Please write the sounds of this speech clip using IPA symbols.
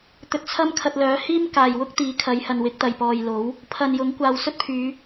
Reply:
t̪ ɵ˧ t̚ t͡sʰ ɐ˥ m kʰ ɐ˧ t̚ l œː˨˥ h iː˥ m k aː˨ j w ʊ˥ k̚ t̪ iː˨˥ kʰ ɐ˨˧ j h ɐ˨ n w ɪ˨˥ k̚ t̪ ɐ˨ j p ɔː˨ j l o˨˥ w | pʰ ɐ˨ n j ʊ˨˥ ŋ kʷ aː˨ w s ɵ˥ t̚ pʰ yː˨˧

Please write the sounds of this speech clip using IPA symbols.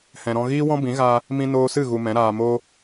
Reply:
h ɛ̃˨ ɾ ɔ̃˧ ɣ iː˦ w ɔ̃˦ b ĩ˨˦ ɣ a˧ | m ĩ˧ n oː˧ s ɨ˦˨ ɣ u˧ m ɛ̃˨˦ ɾ aː˧ m o˦

